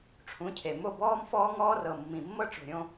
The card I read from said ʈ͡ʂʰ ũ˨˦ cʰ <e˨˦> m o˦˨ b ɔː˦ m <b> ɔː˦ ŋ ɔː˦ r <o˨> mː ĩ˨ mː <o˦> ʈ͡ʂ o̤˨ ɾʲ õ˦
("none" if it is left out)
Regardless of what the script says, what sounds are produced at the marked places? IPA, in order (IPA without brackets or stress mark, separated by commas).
e˨, f, ɤ˨, ɤ˦